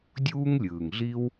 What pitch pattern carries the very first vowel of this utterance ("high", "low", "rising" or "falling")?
high